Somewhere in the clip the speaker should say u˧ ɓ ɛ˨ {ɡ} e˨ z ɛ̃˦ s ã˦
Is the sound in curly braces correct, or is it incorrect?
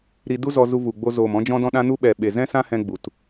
incorrect